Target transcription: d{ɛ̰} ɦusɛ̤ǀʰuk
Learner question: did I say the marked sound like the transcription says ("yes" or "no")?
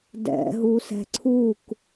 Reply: yes